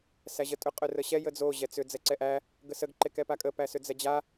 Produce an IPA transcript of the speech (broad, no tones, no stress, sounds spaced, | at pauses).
s æ ʑ ə tʼ ʏ qʼ ʏ r ə ɕ ɛ j ə d͡z o ʑ ɛ t͡s ʏ d͡z ɛ ǀ ɛ ʔ æ | ɡ ə s ə ɡ ǃ e k ɛ p a kʼ ə p æ s ʏ d͡z ɛ d͡ʑ a